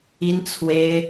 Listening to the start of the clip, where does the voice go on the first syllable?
high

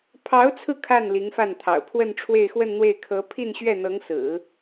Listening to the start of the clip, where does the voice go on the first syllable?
rising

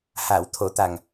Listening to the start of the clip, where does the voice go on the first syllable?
low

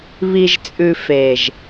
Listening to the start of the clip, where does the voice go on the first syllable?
low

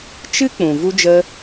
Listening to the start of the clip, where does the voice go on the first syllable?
high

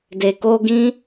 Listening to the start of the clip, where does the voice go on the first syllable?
low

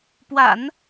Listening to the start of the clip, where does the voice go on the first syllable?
low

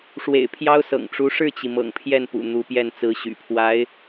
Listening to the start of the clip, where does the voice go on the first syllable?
low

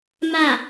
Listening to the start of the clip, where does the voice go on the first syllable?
falling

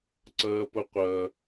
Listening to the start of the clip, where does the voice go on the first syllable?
high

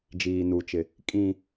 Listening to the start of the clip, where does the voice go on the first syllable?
low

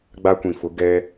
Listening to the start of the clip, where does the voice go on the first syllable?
high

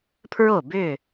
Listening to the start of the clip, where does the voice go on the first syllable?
falling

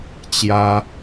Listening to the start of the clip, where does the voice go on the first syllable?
high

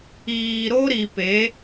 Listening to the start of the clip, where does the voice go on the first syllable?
low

